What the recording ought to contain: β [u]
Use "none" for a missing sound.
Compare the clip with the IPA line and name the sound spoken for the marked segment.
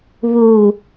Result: u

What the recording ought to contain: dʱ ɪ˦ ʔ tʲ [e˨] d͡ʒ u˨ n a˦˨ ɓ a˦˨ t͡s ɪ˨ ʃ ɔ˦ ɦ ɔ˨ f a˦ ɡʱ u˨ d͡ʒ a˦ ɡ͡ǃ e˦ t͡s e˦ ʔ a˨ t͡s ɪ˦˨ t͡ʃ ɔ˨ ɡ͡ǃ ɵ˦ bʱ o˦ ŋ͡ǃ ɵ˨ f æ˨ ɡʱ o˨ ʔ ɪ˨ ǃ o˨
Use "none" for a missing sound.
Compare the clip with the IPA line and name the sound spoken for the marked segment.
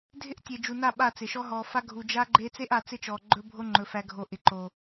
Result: e˨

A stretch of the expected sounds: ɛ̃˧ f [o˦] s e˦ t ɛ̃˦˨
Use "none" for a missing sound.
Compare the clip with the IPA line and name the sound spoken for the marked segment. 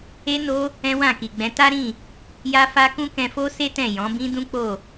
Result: o˦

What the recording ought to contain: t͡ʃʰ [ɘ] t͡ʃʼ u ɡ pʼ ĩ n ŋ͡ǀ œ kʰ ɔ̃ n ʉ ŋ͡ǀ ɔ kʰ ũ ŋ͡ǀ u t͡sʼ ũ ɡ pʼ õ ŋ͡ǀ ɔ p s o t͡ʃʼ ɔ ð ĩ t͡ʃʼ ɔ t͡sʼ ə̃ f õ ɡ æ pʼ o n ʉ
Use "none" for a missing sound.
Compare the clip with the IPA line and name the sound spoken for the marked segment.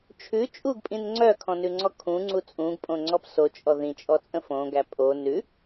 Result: ʉ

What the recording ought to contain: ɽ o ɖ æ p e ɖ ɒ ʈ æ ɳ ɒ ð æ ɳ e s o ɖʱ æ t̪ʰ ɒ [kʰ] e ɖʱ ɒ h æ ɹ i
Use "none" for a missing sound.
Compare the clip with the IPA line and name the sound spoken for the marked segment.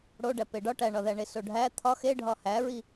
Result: x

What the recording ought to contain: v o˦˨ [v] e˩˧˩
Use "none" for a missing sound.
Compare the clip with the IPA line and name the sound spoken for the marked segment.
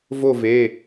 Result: v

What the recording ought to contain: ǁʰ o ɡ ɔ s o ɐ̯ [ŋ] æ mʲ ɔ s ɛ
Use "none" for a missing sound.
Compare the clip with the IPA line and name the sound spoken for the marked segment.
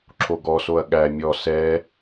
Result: ɠ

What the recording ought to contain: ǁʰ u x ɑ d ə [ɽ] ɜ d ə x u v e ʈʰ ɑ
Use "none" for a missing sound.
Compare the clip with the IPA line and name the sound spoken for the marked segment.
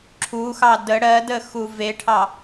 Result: ɽ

